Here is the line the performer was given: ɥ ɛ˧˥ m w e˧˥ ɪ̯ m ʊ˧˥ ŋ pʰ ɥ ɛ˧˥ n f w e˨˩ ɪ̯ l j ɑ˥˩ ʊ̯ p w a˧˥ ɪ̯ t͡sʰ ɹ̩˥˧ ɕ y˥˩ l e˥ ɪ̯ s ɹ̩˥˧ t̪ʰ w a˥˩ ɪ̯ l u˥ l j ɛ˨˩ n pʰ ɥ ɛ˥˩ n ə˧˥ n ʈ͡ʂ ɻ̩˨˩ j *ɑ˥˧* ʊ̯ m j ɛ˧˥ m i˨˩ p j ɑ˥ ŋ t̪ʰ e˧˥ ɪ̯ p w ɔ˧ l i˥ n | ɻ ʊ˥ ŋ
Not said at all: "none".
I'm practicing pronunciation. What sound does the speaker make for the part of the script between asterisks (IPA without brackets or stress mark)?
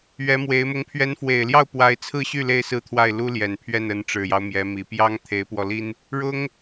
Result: ɑ˦